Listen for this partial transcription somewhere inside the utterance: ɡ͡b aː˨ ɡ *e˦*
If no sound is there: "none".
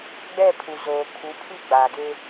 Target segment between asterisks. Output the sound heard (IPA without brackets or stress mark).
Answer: e˦